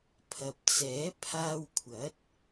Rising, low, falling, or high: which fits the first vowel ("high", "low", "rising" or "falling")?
low